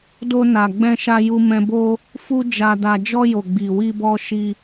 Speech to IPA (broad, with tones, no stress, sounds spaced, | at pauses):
d o˧ n a˨ ɡ͡b ɛ̃˧ ʃ a˧ j u˧ m ɛ̃˧ b o˦ | f u˦ d͡ʒ a˧ d a˧ d͡ʒ ɔ˧ j o˨ ɡ͡b i˨ w i˧ b ɔ˧ ʃ i˧